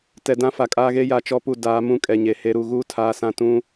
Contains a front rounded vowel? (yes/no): no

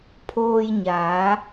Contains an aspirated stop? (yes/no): yes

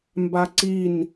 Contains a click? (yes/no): yes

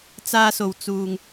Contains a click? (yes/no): no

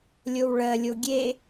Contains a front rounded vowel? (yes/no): no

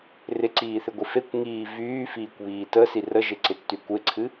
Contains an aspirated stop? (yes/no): yes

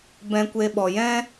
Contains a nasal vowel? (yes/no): yes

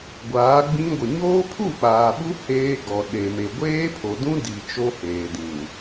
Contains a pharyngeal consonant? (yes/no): no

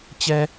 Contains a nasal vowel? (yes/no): no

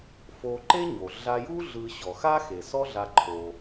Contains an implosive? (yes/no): no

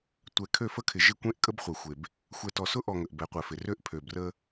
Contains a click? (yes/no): no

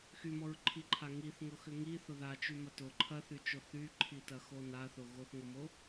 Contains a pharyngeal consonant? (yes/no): no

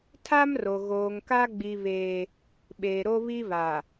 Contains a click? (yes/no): no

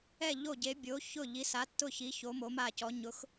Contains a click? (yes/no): no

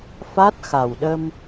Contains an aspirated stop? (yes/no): no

